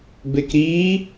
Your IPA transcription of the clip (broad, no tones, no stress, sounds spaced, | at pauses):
b e k ɾ i